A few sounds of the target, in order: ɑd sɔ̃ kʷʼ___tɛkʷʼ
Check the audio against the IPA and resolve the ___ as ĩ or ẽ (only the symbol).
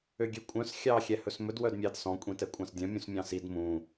ĩ